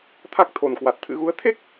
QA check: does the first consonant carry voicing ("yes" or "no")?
no